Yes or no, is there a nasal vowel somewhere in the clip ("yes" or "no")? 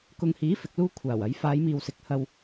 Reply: no